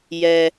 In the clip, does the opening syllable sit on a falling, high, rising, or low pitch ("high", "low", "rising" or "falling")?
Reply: low